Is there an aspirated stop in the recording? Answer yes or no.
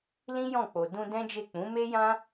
no